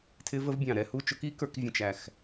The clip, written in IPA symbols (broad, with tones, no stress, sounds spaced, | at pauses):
tʰ ɪ˦˥ v ə˦˥ v bʲ ɑ̃˧˩ ɾ ɛ˥˨ h u˥˨ t͡ʃ ʊ˦˥ k i˦˥ k ə˞˦˥ k vʲ ə̃˥˨ t͡ʃ æ˧˩ x